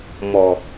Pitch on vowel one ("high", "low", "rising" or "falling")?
low